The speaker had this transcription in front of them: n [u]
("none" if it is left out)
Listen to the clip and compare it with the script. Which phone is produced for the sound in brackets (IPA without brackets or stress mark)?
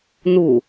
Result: u